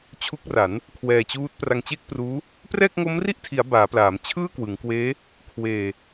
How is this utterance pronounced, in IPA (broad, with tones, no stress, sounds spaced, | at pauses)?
t͡ɕʰ u˦˥ k̚ r a˩˦ n | kʰ w ɛː˧ t͡ɕ uː˦˥ t̚ p r a˧ ŋ t͡ɕ e˥˩ k̚ p r uː˦˥ | p r ɛː˥˩ k̚ ŋ o˦˥ m r i˥˩ ʔ tʰ i˩˦ a̯ b aː˩˦ p l aː˩˦ m t͡ɕʰ ɯː˥˩ k w ɯ˩˦ ŋ k w eː˦˥ | kʰ w eː˨˩